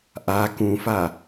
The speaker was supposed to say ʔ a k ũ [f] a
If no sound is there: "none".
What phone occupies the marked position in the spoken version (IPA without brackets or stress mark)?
f